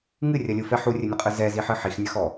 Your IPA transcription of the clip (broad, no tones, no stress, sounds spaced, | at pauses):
ŋ ɨ rʲ ɐ lʲ ɯ f ɛ ħ u rʲ ɘ nʲ ə qʼ ɯ z ɛ z i ħ ɨ ħ i x nʲ ɐ x ɔ